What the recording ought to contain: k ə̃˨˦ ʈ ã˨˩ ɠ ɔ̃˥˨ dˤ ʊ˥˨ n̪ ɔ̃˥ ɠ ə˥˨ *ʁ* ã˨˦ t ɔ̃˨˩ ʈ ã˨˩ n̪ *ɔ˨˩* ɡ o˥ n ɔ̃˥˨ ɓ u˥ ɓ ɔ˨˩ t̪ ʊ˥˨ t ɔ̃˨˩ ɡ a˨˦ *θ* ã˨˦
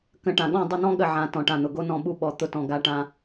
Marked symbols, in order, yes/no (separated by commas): no, no, no